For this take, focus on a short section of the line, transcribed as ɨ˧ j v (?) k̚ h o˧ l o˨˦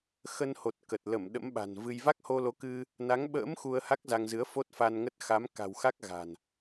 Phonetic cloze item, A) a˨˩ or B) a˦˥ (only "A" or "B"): B